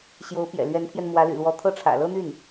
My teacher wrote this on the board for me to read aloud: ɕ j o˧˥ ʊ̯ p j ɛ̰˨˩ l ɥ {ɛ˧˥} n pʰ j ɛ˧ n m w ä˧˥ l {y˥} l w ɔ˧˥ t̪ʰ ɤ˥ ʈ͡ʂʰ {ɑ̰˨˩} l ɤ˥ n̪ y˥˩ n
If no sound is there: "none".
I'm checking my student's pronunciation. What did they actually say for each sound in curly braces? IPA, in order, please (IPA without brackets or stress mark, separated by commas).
ɛ˧˥, y̰˨˩, ä̰˨˩